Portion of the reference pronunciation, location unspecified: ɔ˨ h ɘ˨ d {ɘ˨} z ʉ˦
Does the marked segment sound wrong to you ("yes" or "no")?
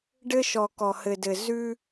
no